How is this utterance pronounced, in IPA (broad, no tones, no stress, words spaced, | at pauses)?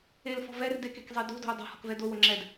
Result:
elfɔ̤ vɛr dekekzˤe do̤do̤u̯ dˤa̤hɔ̤kvɛ dowo ŋ͡ǁɛd